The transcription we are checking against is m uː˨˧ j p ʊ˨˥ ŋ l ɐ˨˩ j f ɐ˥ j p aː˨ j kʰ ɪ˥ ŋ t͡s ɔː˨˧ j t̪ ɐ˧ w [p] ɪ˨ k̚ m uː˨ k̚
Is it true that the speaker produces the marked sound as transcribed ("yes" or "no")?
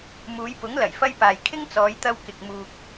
no